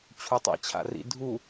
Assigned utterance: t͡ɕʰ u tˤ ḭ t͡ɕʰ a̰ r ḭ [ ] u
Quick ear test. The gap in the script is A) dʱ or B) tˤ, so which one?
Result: A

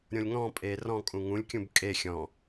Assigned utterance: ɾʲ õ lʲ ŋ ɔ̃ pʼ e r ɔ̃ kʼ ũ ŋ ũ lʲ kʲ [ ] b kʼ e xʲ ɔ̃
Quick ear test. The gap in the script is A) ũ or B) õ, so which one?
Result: A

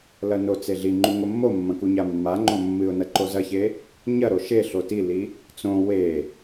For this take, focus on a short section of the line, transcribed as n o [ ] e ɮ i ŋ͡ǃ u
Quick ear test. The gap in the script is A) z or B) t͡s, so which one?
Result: B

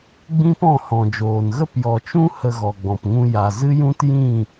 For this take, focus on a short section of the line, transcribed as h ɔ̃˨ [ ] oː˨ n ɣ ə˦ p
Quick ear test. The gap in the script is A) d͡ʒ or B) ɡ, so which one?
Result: A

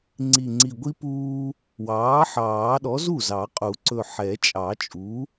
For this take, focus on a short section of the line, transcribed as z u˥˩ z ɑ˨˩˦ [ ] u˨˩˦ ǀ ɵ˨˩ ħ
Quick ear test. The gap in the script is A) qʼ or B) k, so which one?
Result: A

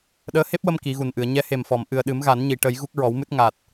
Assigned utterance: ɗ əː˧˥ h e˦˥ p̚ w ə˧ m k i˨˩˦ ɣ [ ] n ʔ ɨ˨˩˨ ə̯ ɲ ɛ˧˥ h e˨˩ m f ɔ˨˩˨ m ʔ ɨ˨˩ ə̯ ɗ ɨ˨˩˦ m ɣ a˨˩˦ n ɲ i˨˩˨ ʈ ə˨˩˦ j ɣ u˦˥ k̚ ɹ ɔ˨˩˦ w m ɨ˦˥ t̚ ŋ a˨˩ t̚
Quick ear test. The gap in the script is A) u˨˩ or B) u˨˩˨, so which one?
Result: A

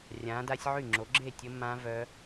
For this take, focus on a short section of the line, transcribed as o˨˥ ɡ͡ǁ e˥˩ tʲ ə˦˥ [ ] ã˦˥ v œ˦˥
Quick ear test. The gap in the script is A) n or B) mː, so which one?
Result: B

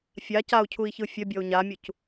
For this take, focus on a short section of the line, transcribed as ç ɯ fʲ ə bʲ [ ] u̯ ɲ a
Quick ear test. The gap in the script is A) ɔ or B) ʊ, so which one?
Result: A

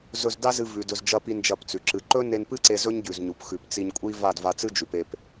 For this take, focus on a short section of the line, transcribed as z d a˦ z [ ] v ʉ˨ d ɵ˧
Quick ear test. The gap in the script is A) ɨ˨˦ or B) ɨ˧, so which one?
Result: B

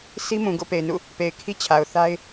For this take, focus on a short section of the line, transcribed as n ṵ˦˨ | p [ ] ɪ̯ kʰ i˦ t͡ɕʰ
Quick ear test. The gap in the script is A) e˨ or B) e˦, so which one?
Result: A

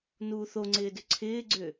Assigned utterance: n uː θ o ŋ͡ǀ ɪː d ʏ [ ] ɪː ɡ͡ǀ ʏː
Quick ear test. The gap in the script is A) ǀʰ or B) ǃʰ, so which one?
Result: A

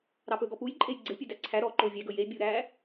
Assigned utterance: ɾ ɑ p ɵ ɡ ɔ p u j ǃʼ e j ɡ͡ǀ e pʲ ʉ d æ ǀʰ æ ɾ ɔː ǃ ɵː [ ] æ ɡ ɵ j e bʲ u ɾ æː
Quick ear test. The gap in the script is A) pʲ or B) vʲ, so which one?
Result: B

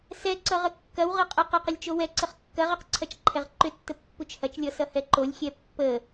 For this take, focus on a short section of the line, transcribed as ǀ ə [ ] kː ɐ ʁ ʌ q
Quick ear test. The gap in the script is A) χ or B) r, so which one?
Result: A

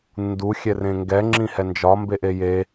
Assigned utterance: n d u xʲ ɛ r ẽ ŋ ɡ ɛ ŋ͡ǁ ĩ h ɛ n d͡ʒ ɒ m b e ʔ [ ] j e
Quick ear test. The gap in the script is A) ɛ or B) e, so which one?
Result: B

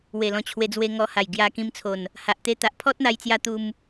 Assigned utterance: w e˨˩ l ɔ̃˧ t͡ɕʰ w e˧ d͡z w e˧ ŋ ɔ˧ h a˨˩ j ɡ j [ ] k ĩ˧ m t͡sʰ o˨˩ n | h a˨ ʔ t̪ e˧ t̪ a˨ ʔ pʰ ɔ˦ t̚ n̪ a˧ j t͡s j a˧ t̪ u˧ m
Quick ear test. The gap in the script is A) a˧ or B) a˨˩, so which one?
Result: A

